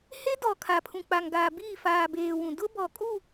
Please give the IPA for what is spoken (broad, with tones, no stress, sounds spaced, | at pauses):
h e˦ d ɔ˨ kʰ a˨ pʰ ũ˨ k͡p a˨ ŋ ɡ aː˨ b iː˦˨ f aː˨ b eː˨ w ũ˨ d ʊ˦ b ɔ˨ kʼ u˦˨